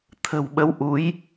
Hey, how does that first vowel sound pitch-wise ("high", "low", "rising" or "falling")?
low